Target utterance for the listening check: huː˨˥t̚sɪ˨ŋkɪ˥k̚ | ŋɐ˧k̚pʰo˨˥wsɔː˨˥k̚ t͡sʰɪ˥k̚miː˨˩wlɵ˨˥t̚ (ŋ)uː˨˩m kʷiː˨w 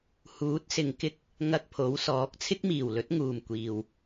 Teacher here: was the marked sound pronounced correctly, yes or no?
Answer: yes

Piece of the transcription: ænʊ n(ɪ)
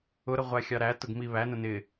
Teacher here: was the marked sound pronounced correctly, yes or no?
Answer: yes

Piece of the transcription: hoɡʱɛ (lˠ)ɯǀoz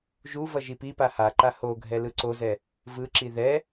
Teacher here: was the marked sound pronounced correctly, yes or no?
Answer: no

